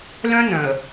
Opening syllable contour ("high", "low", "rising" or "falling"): high